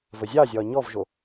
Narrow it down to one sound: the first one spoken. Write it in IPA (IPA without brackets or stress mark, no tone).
v